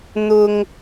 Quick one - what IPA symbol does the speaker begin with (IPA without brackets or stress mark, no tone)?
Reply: n̪